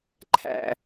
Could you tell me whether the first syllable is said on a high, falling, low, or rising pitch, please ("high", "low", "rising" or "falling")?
low